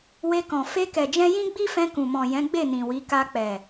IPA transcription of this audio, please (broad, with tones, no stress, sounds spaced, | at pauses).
w e˧ k ɔ̃˨ f e˧ k ɛ˨ d͡ʒ ɛ̃˧ j ĩ˦ ɡ͡b i˦ f ɛ̃˧ k ũ˨ m ɔ̃˨ j ɛ̃˨˦ ɡ͡b e˦˨ n ĩ˨ w i˨˦ k a˧ k͡p ɛ˨